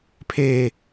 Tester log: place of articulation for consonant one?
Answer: labial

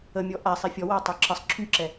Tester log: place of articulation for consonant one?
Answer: labial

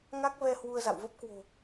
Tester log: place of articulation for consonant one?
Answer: velar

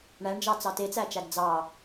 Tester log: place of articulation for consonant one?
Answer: retroflex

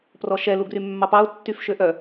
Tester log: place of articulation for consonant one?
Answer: labial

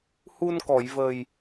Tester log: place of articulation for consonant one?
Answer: glottal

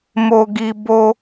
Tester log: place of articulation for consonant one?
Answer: labial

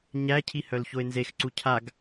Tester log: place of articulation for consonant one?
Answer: palatal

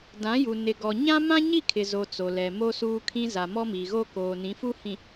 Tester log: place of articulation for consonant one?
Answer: alveolar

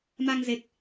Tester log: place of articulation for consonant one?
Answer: labial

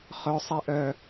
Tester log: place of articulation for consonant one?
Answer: uvular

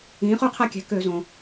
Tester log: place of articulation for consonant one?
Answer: uvular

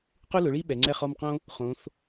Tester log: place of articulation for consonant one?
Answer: uvular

